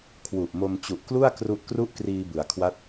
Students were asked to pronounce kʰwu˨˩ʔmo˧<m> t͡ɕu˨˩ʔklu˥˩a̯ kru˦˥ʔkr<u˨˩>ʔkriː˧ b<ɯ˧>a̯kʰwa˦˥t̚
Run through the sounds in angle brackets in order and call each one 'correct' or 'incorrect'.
correct, incorrect: u˥˩, incorrect: ɯ˩˦

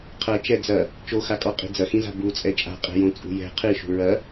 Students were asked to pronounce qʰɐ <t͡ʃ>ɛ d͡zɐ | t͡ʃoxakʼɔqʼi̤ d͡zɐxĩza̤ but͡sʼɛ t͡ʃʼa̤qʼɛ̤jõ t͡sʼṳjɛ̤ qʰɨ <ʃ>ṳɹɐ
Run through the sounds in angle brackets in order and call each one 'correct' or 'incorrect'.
correct, correct

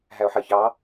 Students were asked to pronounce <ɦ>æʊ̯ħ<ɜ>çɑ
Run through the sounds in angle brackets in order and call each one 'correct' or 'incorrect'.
correct, correct

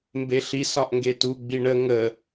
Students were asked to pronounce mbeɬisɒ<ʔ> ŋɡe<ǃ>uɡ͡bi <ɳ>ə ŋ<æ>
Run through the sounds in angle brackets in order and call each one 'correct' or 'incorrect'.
correct, incorrect: t, correct, incorrect: ə

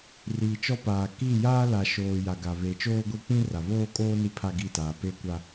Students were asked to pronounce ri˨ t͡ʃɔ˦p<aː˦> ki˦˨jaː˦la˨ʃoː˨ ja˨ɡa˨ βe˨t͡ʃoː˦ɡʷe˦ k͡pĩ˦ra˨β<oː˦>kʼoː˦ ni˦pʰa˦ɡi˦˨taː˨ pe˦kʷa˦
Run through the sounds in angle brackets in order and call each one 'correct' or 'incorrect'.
incorrect: aː˨, correct

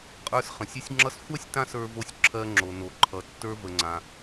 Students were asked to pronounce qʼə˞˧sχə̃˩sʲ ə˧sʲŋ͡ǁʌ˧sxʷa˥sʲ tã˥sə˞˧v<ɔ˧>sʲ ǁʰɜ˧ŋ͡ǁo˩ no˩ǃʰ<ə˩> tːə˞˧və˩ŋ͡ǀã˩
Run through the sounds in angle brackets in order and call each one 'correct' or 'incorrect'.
incorrect: o˧, incorrect: ʌ˩

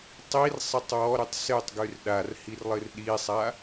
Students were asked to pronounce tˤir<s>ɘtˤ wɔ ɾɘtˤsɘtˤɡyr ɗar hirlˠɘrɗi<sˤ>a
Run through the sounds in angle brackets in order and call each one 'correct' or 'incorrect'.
incorrect: sˤ, correct

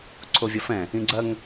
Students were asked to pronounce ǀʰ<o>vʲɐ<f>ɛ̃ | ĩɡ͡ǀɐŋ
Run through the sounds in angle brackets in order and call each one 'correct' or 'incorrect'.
correct, correct

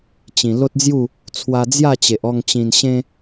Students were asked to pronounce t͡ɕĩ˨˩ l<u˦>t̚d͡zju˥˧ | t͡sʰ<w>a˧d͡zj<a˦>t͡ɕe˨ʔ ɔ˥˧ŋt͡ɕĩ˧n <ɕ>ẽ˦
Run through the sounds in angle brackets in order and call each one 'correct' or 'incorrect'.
incorrect: o˦, correct, incorrect: a˥˧, correct

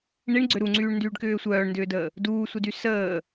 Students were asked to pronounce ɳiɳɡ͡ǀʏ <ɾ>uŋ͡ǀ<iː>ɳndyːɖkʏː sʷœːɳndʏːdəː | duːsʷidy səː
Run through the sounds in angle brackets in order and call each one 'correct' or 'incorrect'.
correct, incorrect: yː

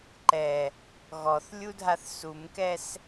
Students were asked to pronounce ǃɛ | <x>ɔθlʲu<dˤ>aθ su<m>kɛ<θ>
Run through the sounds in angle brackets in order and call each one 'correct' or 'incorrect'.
incorrect: ɣ, incorrect: dʱ, correct, incorrect: s

